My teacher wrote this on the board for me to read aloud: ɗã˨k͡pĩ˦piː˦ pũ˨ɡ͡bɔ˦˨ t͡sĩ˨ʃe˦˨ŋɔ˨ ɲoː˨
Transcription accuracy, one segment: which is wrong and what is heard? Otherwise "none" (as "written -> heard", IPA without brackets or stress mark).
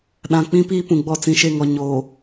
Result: none